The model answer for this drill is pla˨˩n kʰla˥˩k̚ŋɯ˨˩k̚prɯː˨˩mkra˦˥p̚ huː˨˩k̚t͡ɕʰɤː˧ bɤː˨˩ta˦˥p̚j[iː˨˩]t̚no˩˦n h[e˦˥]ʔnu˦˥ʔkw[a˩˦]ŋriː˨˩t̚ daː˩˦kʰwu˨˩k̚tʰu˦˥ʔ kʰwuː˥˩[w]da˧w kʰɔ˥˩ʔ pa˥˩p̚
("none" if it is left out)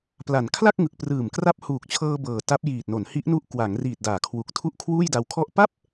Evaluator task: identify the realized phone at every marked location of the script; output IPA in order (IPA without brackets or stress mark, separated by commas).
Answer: iː˨˩, i˦˥, a˩˦, j